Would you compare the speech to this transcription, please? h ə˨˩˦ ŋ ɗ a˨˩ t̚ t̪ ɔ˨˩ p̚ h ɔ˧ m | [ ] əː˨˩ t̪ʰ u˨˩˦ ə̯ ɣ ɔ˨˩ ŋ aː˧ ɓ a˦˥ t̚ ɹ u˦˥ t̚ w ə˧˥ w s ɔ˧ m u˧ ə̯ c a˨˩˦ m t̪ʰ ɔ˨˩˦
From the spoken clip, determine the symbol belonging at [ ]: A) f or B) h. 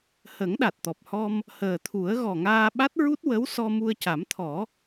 B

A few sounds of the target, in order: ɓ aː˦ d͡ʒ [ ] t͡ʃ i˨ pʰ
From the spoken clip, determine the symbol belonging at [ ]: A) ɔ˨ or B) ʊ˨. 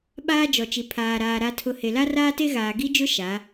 A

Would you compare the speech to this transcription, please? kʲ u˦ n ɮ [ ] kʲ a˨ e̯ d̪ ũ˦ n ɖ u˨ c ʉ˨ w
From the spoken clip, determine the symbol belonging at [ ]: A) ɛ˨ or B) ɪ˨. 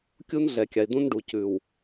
A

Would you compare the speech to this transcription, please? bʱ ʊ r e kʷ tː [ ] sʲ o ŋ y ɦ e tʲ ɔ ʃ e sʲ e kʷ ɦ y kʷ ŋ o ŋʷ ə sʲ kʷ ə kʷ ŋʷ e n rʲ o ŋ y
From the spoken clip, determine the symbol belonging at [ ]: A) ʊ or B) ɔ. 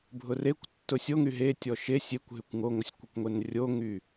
A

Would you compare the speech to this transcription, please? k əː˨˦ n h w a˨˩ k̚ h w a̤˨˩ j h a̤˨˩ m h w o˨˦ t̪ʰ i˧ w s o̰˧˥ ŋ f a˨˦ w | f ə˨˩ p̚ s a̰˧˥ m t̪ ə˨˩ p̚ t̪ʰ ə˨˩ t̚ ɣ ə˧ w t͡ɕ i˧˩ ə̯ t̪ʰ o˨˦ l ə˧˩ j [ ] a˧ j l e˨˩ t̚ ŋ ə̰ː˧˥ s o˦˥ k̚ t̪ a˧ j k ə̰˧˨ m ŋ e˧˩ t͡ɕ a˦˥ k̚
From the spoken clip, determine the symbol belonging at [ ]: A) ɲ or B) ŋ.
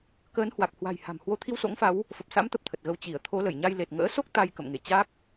A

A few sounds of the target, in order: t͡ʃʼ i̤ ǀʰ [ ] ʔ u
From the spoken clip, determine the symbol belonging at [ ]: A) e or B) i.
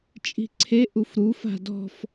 A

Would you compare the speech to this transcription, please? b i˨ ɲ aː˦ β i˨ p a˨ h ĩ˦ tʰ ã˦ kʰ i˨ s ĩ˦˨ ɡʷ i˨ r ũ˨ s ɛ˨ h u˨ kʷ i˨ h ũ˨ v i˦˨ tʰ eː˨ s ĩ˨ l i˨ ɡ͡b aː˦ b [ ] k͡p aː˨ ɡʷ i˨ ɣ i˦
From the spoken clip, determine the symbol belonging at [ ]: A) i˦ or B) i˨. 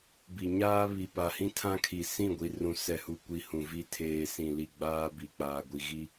B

